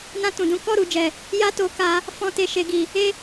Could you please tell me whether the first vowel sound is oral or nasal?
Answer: nasal